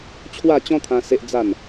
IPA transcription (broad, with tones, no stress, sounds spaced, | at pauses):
t͡ɕʰ w a˥˧ t͡ɕ ɔ̃˦ t̪ʰ ã˧ s e˦ ʔ d͡z a˥˧ n